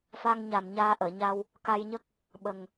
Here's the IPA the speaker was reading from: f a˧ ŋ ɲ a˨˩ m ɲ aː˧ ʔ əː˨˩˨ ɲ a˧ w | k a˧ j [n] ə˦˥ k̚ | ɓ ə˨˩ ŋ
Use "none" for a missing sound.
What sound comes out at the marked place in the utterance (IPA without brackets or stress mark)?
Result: ɲ